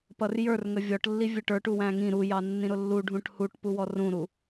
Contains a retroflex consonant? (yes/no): yes